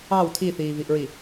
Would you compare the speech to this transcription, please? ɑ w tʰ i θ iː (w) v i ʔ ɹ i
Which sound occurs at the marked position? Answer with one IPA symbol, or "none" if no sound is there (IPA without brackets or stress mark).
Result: none